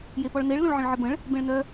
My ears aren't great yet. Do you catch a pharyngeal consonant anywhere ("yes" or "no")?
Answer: yes